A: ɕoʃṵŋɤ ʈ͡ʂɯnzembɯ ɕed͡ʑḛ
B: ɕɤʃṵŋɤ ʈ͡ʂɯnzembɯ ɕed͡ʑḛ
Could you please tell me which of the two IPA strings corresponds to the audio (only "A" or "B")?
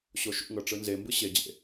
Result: A